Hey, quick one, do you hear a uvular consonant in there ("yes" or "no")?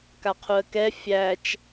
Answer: yes